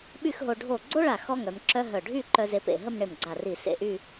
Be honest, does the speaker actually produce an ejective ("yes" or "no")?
no